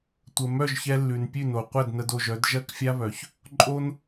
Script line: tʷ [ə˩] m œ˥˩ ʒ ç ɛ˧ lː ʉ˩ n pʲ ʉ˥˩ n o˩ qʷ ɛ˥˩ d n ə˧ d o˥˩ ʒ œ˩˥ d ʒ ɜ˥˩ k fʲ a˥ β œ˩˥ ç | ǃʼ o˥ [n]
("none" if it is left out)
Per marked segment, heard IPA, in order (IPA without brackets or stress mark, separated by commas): ə˩, n